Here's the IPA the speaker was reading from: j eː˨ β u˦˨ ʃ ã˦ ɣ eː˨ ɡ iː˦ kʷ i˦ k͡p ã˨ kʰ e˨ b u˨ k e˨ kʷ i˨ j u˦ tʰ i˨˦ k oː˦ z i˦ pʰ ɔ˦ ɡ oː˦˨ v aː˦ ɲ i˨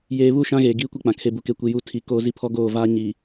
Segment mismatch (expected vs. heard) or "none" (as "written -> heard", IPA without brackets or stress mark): none